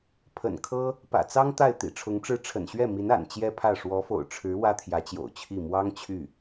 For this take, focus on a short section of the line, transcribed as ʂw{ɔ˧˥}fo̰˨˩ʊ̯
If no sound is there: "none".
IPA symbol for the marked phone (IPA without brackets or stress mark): ɔ˧˥